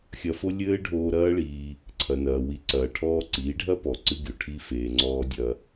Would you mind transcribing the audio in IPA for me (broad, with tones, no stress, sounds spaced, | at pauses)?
xʲ ɐ˧ f o˦ lʲ ɘː˦ ɖʱ oː˧ ɾ ɐː˦ ɭ iː˧ | ǀʰ ɐ˨ n ɐː˨ w i˨˦ ǀ ɐː˨ ʈʰ ɔː˧ ǀ iː˨˦ ɖʱ ɐ˦ p ɔ˨ ǀ ɨ˦ ɡʲ o˨ ʈʰ i˦ f eː˨ ŋ͡ǀ ɔː˧ dʲ ɐ˧